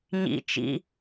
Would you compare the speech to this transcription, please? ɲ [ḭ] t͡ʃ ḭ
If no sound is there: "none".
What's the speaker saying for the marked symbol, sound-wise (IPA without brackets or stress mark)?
ḭ